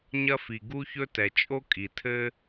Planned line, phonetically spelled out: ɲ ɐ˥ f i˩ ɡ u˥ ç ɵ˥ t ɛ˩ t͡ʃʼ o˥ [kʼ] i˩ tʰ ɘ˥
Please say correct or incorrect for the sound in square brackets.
correct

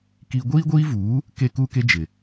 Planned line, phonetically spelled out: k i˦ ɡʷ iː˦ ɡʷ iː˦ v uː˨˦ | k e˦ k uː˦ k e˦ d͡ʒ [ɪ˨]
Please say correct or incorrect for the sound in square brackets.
correct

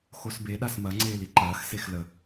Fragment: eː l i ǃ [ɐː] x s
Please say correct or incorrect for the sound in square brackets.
correct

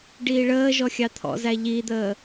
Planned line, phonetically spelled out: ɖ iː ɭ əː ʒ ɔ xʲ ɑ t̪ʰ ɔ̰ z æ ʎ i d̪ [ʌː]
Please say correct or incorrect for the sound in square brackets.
incorrect: əː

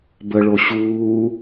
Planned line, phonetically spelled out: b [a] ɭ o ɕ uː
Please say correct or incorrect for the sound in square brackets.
incorrect: ə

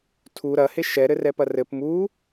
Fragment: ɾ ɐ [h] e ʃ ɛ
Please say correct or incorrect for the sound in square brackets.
correct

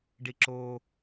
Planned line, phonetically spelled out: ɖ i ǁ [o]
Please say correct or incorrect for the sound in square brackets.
correct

